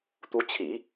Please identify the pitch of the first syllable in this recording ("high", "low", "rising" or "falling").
rising